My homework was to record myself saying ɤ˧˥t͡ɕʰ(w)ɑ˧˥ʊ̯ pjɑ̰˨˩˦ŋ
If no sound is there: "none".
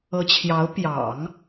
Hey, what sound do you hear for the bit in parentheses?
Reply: j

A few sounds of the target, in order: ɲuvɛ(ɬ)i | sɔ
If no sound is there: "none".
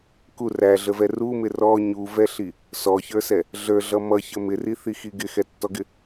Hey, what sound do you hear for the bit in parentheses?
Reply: ɬ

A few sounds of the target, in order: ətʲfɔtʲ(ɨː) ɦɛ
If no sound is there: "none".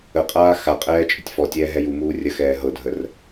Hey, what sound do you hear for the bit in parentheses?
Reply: ɛː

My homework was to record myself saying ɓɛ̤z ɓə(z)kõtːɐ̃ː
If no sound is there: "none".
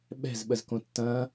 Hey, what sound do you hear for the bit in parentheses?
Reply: z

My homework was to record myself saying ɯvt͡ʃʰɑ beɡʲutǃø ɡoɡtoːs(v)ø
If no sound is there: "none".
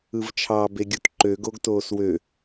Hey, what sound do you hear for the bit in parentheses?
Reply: w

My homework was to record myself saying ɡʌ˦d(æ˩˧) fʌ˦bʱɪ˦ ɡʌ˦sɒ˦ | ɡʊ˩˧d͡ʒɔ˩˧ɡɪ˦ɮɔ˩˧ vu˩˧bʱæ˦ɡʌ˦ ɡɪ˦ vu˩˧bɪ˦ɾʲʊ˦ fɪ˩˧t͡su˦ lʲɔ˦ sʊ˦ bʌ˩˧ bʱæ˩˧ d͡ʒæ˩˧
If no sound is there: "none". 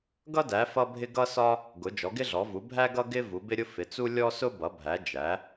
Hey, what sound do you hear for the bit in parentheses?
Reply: æ˩˧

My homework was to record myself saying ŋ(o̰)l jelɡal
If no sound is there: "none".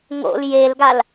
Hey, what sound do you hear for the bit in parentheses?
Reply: o̰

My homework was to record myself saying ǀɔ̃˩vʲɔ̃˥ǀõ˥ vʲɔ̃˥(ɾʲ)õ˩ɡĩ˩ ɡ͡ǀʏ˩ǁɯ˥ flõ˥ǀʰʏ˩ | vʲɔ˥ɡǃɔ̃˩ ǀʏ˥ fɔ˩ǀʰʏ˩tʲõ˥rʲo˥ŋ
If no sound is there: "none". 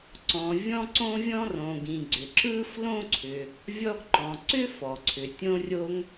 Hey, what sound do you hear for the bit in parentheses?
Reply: r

